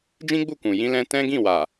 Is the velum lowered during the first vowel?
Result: yes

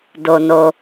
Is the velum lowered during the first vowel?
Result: no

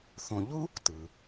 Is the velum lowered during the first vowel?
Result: yes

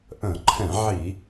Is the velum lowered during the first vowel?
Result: yes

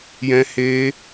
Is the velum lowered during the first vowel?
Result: yes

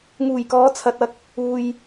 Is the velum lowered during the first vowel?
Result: no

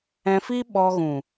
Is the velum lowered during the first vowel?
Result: yes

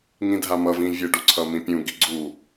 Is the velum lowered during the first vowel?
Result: yes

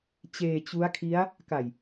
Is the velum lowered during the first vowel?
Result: no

